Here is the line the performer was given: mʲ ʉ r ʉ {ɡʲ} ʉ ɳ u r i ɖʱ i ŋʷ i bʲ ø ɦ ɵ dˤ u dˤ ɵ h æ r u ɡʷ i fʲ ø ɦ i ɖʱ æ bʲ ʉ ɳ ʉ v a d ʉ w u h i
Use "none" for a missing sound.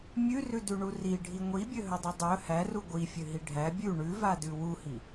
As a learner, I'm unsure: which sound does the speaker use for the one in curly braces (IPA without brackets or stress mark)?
d